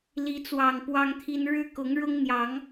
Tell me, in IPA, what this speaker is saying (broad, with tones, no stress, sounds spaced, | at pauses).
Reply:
l i˨˦ t͡s w ɑ˨˩ ŋ p w ɑ˦ ŋ t̪ʰ i˦ n ɻ ɻ̩˦ k ʊ˨˦ ŋ ɻ ʊ˦ ŋ n̪ j ɑ˨˦ ŋ